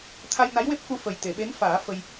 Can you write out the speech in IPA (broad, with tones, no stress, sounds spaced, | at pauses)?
t̪ʰ a˧ j n a˧˥ j w e˦˥ p̚ k u˧ f ə˨˩ j t̪ e˨˩˨ ɓ e˧˥ n f aː˨˩˦ f ə˧ j